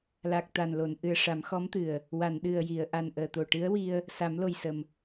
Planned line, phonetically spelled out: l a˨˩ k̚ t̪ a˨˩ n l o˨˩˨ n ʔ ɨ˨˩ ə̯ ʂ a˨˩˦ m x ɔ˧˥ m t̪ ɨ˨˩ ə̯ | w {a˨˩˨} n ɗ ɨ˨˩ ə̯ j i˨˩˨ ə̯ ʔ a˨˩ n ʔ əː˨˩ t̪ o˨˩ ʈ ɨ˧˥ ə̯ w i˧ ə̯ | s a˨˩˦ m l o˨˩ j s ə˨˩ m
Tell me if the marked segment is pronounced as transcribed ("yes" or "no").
yes